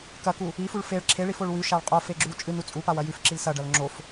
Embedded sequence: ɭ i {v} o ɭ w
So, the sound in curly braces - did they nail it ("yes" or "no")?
no